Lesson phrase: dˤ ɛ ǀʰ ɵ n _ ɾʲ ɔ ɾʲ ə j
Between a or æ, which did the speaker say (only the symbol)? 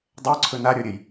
a